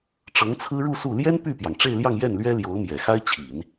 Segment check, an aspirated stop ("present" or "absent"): present